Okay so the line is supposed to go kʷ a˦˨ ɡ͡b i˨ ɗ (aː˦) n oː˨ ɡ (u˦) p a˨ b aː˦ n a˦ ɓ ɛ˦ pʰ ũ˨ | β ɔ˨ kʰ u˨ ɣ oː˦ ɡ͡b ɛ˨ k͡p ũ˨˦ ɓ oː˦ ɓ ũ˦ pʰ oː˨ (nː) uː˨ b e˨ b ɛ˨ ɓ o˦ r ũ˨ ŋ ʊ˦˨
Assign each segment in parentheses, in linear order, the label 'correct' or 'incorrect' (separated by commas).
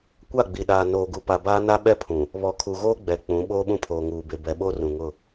incorrect, incorrect, incorrect